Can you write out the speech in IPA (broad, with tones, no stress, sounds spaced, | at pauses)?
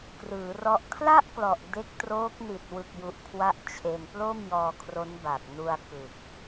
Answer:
k r ɯː˩˦ r ɔ˦˥ ʔ kʰ l a˥˩ ʔ k l ɔ˨˩ ʔ d e˦˥ k̚ t r oː˦˥ k̚ n i˨˩ t̚ w ɯ˨˩ k̚ j u˨˩ ʔ kʰ w a˦˥ ʔ t͡ɕʰ e˧ n p l o˥˩ m j ɔː˧ kʰ r o˦˥ n b a˨˩ k̚ n u˧ a̯ k ɯ˨˩ k̚